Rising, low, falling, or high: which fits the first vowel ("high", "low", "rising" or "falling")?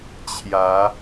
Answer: rising